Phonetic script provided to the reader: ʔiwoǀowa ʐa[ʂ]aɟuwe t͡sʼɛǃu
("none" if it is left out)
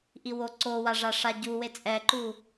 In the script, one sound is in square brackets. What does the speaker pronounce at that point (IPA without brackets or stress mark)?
ʂ